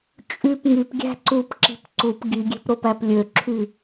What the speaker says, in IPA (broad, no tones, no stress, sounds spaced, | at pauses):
t͡ʃʼ y p ŋ y p ɡʲ æ̤ ǀ u p ǁ i̤ p ǀ u p ɡ i ɡʲ e̤ p ɾ o p æ p lʲ ø ǁʰ y